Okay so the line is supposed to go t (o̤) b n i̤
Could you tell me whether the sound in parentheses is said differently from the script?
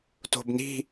no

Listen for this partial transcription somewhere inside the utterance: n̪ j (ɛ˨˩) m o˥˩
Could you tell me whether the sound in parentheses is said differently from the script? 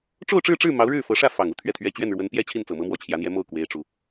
yes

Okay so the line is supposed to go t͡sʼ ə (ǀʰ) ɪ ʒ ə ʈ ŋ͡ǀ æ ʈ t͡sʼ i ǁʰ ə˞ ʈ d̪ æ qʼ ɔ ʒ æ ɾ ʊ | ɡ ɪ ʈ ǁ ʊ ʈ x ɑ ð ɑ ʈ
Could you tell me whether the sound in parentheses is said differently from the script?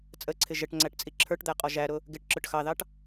no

